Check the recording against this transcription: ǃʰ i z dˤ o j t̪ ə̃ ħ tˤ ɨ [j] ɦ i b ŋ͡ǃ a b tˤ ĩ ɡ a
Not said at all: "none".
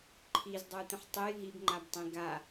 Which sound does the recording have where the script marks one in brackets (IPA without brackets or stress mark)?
j